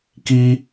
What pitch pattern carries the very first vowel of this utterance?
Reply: high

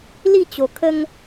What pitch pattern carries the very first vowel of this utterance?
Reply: falling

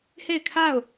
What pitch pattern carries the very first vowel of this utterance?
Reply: falling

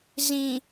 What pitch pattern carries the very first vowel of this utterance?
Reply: low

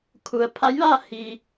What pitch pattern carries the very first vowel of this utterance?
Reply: low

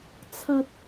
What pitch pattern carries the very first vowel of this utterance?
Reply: low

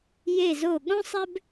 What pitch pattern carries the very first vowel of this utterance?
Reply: falling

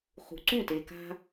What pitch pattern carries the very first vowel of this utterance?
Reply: low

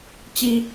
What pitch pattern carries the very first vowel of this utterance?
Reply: high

